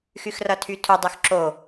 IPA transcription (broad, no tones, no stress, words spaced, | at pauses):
xyxrʌtʰytʰu dˤyxǁo